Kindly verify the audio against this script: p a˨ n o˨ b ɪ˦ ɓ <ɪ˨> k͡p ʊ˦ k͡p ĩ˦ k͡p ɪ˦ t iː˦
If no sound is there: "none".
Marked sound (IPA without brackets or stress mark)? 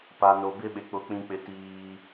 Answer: ɪ˨